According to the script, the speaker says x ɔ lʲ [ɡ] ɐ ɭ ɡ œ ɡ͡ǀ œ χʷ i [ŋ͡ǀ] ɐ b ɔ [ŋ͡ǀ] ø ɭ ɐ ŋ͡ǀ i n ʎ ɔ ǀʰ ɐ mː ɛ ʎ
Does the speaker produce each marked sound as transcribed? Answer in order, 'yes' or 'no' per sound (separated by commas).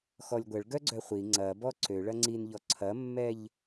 no, yes, no